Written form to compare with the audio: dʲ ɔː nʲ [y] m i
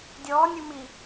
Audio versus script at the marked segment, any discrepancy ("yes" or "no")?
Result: yes